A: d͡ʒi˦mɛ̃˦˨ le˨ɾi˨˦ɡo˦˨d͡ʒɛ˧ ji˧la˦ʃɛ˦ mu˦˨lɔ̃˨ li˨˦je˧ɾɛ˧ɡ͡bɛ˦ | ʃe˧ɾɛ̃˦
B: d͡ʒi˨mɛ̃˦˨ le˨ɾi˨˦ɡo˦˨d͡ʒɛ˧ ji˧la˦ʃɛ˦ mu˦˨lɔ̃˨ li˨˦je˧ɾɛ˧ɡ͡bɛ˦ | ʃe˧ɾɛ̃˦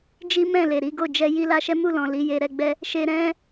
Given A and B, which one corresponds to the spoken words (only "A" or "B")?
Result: A